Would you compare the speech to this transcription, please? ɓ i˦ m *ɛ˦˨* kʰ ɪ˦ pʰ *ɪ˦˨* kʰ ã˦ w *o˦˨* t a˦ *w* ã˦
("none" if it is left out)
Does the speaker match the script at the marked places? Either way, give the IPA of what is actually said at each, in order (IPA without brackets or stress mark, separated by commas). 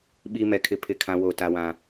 ɛ˦˨, ɪ˦˨, o˦˨, w